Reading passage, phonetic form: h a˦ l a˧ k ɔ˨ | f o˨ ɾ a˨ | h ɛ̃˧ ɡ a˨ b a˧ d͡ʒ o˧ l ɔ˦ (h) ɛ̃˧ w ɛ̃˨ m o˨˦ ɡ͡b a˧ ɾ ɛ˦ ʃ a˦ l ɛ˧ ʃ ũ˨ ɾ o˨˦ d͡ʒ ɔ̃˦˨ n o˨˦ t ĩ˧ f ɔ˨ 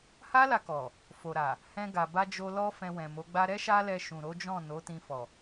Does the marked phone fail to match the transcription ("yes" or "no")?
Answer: yes